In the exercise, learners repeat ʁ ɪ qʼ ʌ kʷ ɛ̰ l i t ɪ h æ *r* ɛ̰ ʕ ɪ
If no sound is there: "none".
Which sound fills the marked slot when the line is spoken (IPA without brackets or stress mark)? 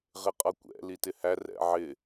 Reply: r